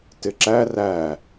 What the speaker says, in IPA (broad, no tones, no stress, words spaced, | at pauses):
tɪǁæ ræ